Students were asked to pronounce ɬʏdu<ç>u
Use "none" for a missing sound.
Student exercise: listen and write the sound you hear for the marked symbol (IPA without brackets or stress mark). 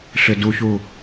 ç